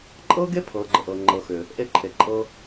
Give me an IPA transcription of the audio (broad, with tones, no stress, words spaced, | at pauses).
ǃʼɤ˦ɡe˦ pʰɤː˨˦ɡ͡ǃə˨ʔɤː˨ ŋ͡ǃɤ˨xʏ˨ | ʔe˦ǃʰe˨ ǃʼɤ˦